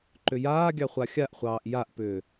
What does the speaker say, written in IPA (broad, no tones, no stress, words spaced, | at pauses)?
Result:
ǃʏjaːɡʲɑ χʷaxʲaʔχʷɑːʔ jaʔpʏː